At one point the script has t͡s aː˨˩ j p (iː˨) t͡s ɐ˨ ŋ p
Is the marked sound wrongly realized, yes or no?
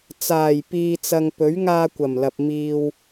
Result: no